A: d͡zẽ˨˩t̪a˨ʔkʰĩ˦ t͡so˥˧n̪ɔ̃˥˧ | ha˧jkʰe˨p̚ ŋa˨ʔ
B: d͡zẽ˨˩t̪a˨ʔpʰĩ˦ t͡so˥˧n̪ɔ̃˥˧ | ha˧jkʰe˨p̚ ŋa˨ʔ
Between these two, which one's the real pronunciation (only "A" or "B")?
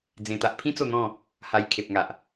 B